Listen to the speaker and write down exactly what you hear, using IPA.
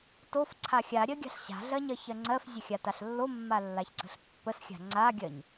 t o f ǀʰ a xʲ a ɾʲ ɜ ɡʲ a̤ ɬ ɕ a̤ ɮ ɜ ɲ ɜ ç ɜ ŋ͡ǀ ɜ f zʲ ə xʲ a t a ɬ lː o mː a lː a ç ǀ ə̤ ɬ pː ə s xʲ a̤ ŋ͡ǀ a ɡʲ ɜ ɲ

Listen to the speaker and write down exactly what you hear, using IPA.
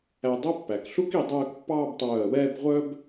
æ˧ dˤ u˥˧ pː æ˩˧ k ɬ u˥ k i˧ dˤ œː˥˧ k pː ɑː˥˧ b tˤ œː˧˩ ə̯ w ɛː˥˧ b ʁʷ œ˥ b

